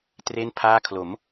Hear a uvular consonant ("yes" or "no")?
no